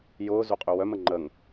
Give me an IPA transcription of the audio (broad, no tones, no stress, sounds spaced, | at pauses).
j ʊː z u qʼ y w œ m ə ŋ͡ǃ ə ŋ